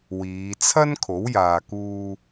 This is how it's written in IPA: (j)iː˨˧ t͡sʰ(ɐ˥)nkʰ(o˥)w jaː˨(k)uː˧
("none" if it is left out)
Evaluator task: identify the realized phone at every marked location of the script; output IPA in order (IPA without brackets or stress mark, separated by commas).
w, ɐ˥, o˨˥, k